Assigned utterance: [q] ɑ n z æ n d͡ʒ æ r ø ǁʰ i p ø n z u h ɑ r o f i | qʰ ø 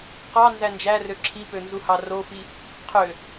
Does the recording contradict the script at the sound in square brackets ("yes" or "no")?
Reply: no